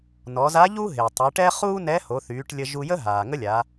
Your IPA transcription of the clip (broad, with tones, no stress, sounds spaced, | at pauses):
n ɔ˩˧ z a˧˥ ʎ u˥ ɦ e˩ tˤ u˩˧ ʈ ɛ˥ χ uː˥ n ɛ˧˥ h o˩˧ θ yː˩˧ ʈ lʲ ə˧ ʒ u˧ j ə˥ ɦ aː˩ ŋ ə˥ lʲ a˩˧